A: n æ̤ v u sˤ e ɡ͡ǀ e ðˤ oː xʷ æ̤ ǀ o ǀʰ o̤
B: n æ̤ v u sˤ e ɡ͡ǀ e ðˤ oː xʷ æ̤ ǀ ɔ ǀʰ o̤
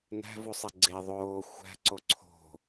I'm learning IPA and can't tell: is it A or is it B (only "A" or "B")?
A